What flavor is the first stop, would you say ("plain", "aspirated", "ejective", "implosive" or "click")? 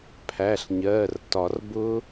aspirated